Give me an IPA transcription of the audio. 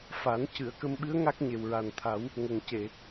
f a˨˩˦ n c ɨ˨˩˨ ə̯ k ə˧ m ɓ ɨ˧˥ ə̯ ŋ a˦˥ k̚ ɲ e˨˩ w ɹ a˨˩ n t̪ʰ a˨˩˦ w | ŋ ə˨˩ ŋ c e˨˩˨

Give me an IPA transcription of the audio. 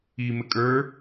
i m ɘ kʼ ə˞

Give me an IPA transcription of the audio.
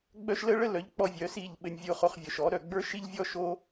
ɡ͡b œ˦ ʃ l ə˦ ɭ ə˦ l œ˨˦ ʎ k͡p ɔ˦ vʲ œ˨˦ s i˦˨ ʎ ɓ ɘ˨ nʲ vʲ o˧ χ o˧ χ vʲ œ˨ ʃ ɔ˨˦ ɾ œ˦˨ ɡ͡b ə˞˦ ʃ i˦ ʎ vʲ ɔ˦ ʃ o˦

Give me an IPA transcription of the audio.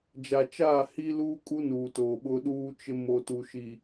d͡ʒ a˨ t͡ʃ aː˦˨ h i˦ l uː˦ kʼ u˦ n uː˨ t oː˨ ɓ ʊ˦ ɗ uː˦ t͡ʃ ɪ˦ m o˨ t u˨ ʃ i˨

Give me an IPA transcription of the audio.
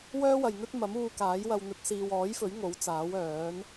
w œː˥ w ɐ˨ j n̪ ɵ˥ t̚ m ɐ˨˥ m uː˧ k aː˨˥ j w ɐ˧ w n̪ ɵ˨˥ t̚ s iː˨ w ɔː˨˥ j f ɵ˨˥ ɥ ŋ o˨˥ w t͡s aː˨˥ w œː˨˥ n

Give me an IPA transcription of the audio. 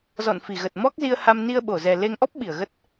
z ɔ̰˧˨ n f i˧˩ ɣ ə˨˩ t̚ m ɔ˦˥ k̚ z i˧ ə̯ h a˧ m n i˧ ə̯ ɓ o˧˩ z ɛ˨˩ l e˧ ŋ ʔ ɔ˦˥ p̚ ɓ i˧˩ ə̯ ɣ ə˦˥ t̚

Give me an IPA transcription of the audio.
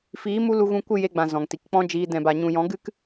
f iː˨˦ m u˧ l u˧ ɣ ũ˧ kʷ ɨ˦˨ j e˧ ɡ͡b ã˨ z ɔ̃˨ ŋ t i˨ k k͡p ɔ̃˦ d͡ʒ iː˧ d ɛ̃˨ b a˨ ɲ ũ˨ j ɔ̃˨˦ ɡ ɨ˦ k

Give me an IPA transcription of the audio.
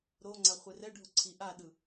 ɾ o ŋ͡ǀ a χʷ e r ɛ ɖʱ o ǀʰ i ʔ a ɗ ɯ

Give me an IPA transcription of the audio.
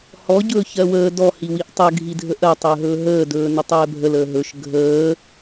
h ɔ ɟ ɵː ç ɜ w əː d ɔ h i w i ʔ tˤ ə ɡʱ i dʱ ə ʔ ɜ tˤ əː ɦ ɵː ɦ əː d ɵː n ə tˤ ɛː bʱ ə l əː ɦ ɵ ʃ ɡʱ əː

